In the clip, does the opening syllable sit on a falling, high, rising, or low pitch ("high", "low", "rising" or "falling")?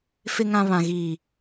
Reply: low